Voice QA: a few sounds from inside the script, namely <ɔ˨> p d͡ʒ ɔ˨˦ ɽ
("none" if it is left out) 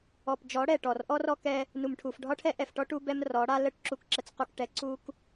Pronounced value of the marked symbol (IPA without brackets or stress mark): ɔ˨